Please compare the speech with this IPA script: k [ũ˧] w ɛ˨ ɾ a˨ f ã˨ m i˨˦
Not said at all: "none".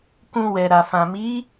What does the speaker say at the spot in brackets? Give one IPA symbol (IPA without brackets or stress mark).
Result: ũ˧